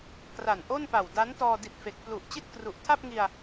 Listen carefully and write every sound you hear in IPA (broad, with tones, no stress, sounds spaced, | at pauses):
k r a˨˩ n ʔ o˥˩ n p a˨˩ w d a˦˥ n t ɔː˧ d i˨˩ t̚ f e˨˩ k̚ p l u˨˩ ʔ t͡ɕ i˥˩ t̚ k r u˨˩ ʔ tʰ a˥˩ p̚ ŋ i˧ a̯